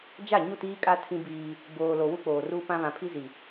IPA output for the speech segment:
d͡ʒ a˦˨ ɲ u˦˨ t iː˦ kʼ a˦ tʰ ĩ˦ b iː˦ | b oː˨ l o˨ w u˦ k͡p oː˨ r uː˦ p ã˦ β ã˨ pʰ i˦ z i˨

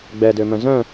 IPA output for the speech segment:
ɡ͡b ɛ d ø m œ̃ z œ̃

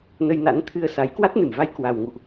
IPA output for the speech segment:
n ə˧ j n a̰˧˥ n t̪ʰ ɨ˧ ə̯ s a˨˦ j k w a˦˥ t̚ n ɨ˧˩ m v a˧ j k w a˨˩ w ŋ ṵ˧˨ ʔ

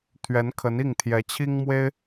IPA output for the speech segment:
t̪ʰ ɥ ɛ˧˥ n kʰ ə˧˥ n i˥˩ ŋ t̪ʰ j ɛ˧˥ t͡ɕʰ i˥ ŋ m w e˥ ɪ̯

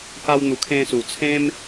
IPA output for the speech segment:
k a˧ w n̪ u˨˩ kʰ ẽ˧ s u˨˩ t͡sʰ ẽ˦ m

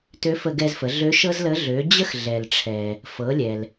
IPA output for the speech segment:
t ø˧˥ f ə˧ ɡ ɛ˧ z f ə˩˧ ɮ ø˧˥ ʃ ɤ˥ z l ə˧˥ ɮ ø˩˧ d͡ʑ ə˥ x ɮ ɛ˩ l ʈ͡ʂʰ ɛ˩ | f ɤ˩˧ lʲ ɛ˩ l

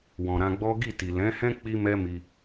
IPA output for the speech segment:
w ɔ̃˨ ɾ ã˧ ɡ͡b ɔ˦ ɡ i˦˨ t i˨ l ɛ̃˨˦ h ɛ̃˦ k͡p i˦ m ɛ˦ m i˧

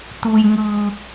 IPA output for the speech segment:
t̪ u˩ j ŋ ɯː˩

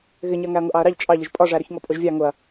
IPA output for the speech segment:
ɣ ɪ ɲ ɜ ŋ æ ɐ̯ ŋ ʊ ʔ ɑ ɐ̯ ɾ ɑ ʎ t͡ʃʼ ɑ ʎ ɪ ʒ pʼ ɒ ʐ æ ɾ ʊ ç ŋ ɔ pʼ ʊ ʒ vʲ ɑ ŋ ʊ ɐ̯

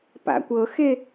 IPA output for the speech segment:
p a̰ kʷ ɤ x e

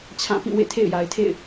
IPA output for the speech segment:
t͡ɕʰ ã˦˨ p ĩ˦˨ w ḛ˦˨ tʰ ḛ˦˨ ɪ̯ j a˨ ɪ̯ tʰ ḛ˦˨ ɪ̯

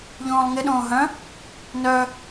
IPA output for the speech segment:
ʎ õː lˠ ŋ ɪ ɗ õː ɦ œ̃ | n œ

